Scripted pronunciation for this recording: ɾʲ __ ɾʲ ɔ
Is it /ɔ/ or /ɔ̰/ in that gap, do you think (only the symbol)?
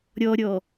ɔ